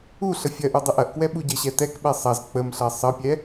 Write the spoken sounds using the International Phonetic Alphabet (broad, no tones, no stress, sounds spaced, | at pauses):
u ɬ ə fʲ ɐ ʔ u dˤ ə ʔ ɐ ʔ k w ɛ ɓ u ɟ ə ɕ ɛ t ɛ k ɓ ɛ sˤ ɐ z k͡p ə m ɬ ɐ sˤ ə pʲ ɛ